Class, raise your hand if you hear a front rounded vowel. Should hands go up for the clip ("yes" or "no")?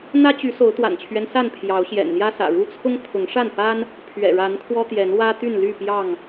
yes